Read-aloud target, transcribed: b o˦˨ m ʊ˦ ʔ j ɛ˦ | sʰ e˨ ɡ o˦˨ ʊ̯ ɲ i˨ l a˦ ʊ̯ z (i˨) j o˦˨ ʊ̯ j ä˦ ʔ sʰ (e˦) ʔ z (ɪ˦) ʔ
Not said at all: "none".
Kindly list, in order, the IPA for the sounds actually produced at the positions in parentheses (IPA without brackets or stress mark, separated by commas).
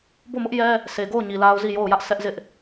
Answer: i˦˨, ɛ˦, ɪ˦